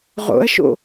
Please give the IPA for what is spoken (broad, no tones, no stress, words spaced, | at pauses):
ʁo̰ɐ̯ʃo̰